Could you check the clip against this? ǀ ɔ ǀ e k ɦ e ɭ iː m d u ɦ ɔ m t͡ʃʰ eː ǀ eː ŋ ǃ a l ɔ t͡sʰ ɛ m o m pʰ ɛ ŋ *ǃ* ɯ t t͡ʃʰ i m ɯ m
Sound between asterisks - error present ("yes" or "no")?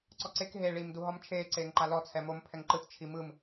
no